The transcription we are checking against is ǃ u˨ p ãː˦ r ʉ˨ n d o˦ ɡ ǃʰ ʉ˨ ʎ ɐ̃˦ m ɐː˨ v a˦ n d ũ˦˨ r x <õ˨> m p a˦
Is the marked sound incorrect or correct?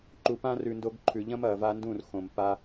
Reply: correct